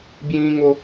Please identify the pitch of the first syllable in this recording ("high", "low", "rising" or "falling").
high